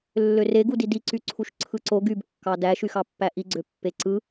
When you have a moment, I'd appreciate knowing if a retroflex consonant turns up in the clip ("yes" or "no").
no